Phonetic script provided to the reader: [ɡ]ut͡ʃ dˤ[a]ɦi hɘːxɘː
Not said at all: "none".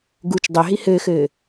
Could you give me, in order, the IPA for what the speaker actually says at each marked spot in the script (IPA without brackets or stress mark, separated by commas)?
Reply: ɡ, a